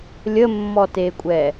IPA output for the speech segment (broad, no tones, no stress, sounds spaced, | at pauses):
lʲ ə mː ɔ t e kʷʼ ɛ